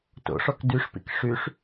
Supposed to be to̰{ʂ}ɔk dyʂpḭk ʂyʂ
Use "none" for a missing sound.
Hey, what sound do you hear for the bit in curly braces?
ʂ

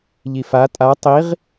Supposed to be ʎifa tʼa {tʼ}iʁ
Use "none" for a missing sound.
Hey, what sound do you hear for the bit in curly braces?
tˤ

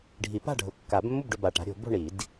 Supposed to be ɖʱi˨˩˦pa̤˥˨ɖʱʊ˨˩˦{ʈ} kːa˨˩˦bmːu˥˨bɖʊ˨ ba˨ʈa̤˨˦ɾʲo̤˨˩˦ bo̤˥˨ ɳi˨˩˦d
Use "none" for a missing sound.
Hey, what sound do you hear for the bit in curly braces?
none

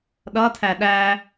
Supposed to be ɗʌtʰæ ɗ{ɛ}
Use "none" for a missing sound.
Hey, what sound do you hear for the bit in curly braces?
æ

